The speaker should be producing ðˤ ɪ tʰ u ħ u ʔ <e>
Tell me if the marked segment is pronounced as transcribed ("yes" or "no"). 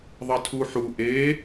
yes